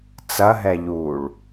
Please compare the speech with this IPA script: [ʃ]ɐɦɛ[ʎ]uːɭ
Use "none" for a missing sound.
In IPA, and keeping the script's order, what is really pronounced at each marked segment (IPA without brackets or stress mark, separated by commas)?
t͡s, ʎ